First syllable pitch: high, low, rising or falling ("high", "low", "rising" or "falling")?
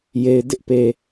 low